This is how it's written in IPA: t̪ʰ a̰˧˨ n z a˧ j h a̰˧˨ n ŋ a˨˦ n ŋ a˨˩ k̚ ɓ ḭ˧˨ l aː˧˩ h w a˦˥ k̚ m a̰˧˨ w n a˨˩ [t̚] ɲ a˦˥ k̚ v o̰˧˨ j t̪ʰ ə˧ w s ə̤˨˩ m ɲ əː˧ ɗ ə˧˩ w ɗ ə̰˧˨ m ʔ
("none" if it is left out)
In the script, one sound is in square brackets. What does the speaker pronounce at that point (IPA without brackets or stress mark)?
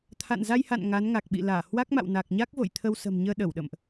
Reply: k̚